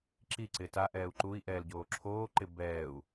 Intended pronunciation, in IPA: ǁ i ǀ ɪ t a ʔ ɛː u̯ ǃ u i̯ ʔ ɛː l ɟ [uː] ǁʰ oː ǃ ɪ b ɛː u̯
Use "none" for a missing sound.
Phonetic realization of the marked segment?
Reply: oː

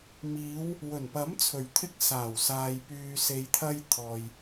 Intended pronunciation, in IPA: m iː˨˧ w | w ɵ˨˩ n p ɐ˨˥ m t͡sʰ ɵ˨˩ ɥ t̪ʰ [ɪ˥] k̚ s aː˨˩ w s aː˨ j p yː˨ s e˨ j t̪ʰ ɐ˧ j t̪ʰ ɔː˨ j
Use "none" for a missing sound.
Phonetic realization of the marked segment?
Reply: ɪ˧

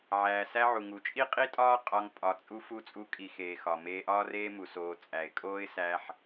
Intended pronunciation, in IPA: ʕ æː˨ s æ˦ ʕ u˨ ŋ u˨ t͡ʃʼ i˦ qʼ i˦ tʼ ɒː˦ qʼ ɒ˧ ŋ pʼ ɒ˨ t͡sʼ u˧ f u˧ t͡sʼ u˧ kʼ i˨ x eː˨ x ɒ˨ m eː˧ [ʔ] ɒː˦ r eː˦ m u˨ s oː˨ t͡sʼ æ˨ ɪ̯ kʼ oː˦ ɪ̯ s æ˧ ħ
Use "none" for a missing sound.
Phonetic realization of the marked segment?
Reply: ʔ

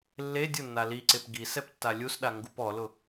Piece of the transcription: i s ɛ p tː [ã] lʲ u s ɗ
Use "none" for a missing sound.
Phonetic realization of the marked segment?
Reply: a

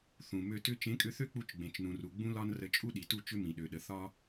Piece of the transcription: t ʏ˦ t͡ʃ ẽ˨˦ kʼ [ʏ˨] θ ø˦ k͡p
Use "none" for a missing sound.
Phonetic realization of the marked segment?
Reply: ʏ˧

